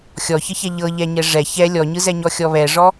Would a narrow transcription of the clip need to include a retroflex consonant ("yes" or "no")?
yes